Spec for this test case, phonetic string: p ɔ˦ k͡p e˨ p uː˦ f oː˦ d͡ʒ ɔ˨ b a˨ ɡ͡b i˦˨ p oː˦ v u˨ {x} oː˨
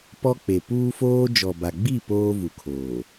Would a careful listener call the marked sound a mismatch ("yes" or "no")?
yes